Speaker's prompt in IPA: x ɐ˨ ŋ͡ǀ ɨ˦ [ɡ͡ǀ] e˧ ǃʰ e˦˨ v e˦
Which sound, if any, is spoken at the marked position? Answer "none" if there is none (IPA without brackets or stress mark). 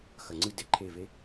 d